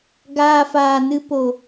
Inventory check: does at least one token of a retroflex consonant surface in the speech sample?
no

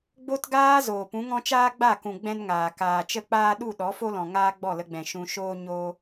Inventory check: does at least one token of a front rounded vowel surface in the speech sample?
no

